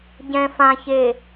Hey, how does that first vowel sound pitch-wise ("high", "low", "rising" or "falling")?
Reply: low